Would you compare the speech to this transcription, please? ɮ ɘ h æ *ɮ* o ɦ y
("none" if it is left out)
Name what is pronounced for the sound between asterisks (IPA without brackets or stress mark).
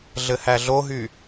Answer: ɮ